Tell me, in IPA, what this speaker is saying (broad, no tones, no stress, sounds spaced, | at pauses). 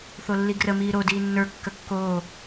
θ o lː i ɡ r ə m iː ɾ o d iː nː ə˞ kː ə kː oː